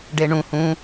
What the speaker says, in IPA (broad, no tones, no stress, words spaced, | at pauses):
ɖeɳũ hũ